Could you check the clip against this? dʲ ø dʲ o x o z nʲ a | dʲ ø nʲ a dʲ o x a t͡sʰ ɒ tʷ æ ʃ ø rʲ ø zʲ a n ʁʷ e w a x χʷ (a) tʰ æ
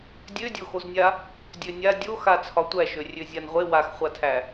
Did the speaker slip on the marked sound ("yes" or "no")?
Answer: no